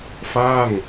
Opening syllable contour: falling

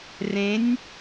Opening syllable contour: rising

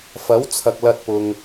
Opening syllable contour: rising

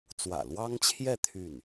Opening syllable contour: low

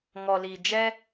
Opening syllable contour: low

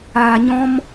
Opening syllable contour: low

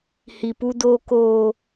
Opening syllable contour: low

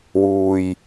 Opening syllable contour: low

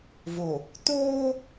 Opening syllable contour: low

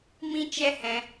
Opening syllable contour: high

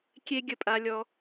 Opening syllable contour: high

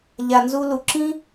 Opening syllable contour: low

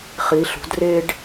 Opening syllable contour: rising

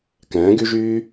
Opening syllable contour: rising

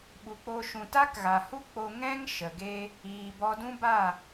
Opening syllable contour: low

